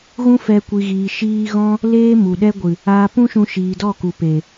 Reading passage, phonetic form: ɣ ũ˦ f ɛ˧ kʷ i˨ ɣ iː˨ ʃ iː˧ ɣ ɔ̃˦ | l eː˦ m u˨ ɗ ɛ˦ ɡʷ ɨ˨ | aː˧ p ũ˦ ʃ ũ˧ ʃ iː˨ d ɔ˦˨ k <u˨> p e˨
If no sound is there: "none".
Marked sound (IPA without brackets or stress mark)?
u˨